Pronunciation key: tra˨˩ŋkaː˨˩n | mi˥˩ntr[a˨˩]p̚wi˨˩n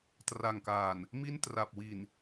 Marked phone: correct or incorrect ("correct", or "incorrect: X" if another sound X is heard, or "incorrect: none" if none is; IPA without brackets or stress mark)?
correct